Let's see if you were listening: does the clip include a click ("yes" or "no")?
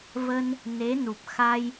no